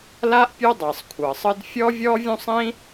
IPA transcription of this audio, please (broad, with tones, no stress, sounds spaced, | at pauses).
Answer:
l a˥ ʔ pʲ u˦ dˤ ɤ˩ sˤ kʷʰ ɤ˩ sˤ ɯ˦ d fʲ ɔ˥ vʲ ɔ˥ vʲ ũ˥ sˤ ĩ˥